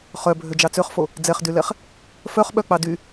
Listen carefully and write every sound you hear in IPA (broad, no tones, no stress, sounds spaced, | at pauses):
χ œ bʱ ø d͡ʒ ɑ t͡s ø χ f o | d͡z ɛ χ d y l ɛ χ | f œ χ ɓ œ k͡p ɑ d y